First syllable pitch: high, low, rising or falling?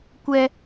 high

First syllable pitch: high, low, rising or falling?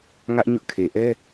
high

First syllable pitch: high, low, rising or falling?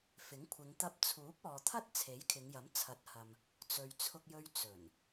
rising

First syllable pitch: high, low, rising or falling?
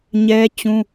high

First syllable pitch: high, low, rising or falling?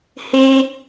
high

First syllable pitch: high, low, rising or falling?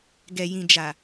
low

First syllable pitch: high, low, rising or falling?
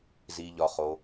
low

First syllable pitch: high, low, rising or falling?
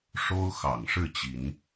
high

